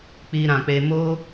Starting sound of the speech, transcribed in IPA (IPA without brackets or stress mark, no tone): k͡p